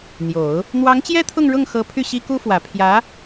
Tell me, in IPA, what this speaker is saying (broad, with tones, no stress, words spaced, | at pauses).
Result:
n̪jo˨˩˦ʊ̯ | n̪wɑ˧˥ŋt͡ɕjɛ˥ t̪ʰʊ˥˧ŋɻʊ˥˩ŋ xɤ˧˥ pʰy˥˩ɕi˥ku˥fwä˨˩ pʰjä˧˥